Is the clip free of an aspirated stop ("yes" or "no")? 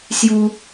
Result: yes